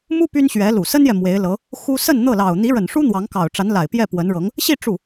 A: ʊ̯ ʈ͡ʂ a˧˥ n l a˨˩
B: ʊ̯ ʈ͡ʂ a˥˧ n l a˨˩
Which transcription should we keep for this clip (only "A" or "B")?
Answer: A